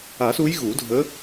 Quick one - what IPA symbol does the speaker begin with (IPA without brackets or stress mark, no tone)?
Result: a